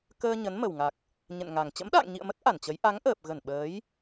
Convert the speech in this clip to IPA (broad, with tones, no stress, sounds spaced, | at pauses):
k əː˧ ɲ ə˨˦ n m ə˨˩ w ŋ a˨˩ k̚ | ɲ ɛ̰˧˨ n ŋ a˨˩ ŋ t͡ɕ ə̰˧˥ m ɗ a̰ː˧˨ ŋ ɲ ḭ˧˨ ə̯ m ə˦˥ t̚ ʔ a˧˩ n t͡ɕ ə˨˦ j ʔ a˨˦ ŋ ʔ əː˨˩ p̚ ɣ ə˧˩ n ɓ əː˨˦ j